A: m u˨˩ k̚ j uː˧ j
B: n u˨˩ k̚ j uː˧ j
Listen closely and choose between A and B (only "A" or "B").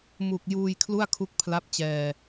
A